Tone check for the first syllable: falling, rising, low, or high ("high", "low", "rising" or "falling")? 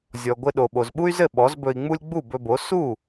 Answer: low